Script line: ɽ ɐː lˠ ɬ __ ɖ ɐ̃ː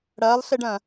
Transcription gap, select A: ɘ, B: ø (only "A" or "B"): A